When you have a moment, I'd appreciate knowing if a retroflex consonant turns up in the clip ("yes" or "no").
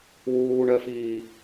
yes